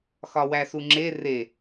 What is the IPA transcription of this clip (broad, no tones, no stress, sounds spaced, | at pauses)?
x ɒ w æ s u ŋ͡ǁ e r e